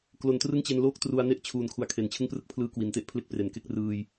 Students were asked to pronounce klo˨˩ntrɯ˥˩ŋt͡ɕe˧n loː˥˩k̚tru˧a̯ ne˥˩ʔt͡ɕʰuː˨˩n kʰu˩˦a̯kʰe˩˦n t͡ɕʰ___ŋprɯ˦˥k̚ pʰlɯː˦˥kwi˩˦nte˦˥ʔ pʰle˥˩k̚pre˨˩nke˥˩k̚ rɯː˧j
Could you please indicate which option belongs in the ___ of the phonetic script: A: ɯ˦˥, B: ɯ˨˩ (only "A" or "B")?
A